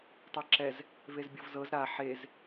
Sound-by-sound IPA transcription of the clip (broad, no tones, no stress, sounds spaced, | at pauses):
tˤ ɛ ǁ ɛ z | v e z bʲ ɤ v z ɤ z ɾ a ħ e z